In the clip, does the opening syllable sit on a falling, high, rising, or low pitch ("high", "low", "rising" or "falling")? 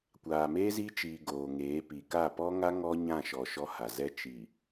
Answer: low